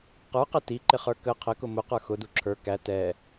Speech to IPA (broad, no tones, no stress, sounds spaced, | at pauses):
q ə˞ q ɛ t i ǃ ɪ χ ə˞ k ə qʰ ə k ʊ m ʊ q ə˞ x ʊ d u ǁʰ ə˞ k æ t ɛ